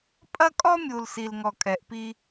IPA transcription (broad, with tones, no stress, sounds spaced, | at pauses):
pʼ ɐ˦ kʼ ɔ˦ mʲ u˨ l s i˨ l ŋ ɔ˨ kʼ ɛ˨ ʔ p i˦